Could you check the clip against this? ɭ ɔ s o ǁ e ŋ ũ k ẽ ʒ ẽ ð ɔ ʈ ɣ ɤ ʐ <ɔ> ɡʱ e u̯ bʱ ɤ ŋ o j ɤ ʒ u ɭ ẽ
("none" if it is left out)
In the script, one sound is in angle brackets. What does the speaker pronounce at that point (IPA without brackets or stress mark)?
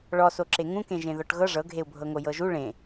ɤ